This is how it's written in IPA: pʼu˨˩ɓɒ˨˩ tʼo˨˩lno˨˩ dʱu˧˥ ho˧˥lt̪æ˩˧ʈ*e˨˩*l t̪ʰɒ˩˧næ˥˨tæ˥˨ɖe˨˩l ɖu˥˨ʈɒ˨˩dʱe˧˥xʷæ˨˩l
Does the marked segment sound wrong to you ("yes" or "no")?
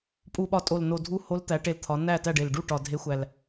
no